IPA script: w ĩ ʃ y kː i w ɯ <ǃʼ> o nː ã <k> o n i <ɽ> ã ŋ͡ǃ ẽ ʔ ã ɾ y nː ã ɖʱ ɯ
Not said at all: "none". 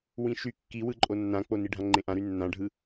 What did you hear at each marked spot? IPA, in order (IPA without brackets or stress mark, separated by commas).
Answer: ǃʼ, k͡p, ɖʱ